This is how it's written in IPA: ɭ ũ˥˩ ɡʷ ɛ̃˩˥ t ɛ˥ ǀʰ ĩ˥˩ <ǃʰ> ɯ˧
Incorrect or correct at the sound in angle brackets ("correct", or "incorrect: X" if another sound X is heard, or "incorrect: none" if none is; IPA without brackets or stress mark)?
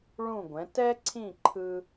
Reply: correct